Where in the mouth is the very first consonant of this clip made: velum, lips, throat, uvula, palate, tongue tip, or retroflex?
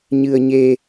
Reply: palate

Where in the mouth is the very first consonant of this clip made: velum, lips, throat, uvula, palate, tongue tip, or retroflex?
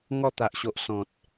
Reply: velum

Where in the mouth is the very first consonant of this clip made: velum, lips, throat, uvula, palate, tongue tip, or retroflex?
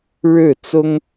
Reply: retroflex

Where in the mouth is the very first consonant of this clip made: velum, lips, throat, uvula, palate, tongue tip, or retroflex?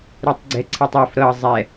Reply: tongue tip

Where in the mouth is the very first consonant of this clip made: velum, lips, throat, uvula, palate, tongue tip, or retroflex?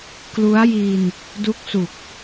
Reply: velum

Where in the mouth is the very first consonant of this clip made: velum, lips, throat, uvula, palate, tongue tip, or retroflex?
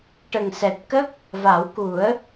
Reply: retroflex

